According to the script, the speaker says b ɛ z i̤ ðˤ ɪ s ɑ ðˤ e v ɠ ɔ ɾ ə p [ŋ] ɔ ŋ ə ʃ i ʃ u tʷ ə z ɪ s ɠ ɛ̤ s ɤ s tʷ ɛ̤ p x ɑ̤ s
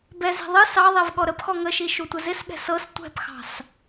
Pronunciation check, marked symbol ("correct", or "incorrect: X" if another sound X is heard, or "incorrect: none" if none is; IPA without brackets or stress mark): incorrect: x